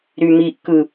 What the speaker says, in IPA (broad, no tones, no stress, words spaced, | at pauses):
ɾymiʔkɯ